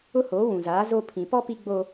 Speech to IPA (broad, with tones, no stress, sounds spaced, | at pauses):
ʊ˦ h oː˨˦ w ũ˨ z aː˨˦ z o˦ pʰ ĩ˨ p ɔ˦ p i˦ ɡ͡b o˦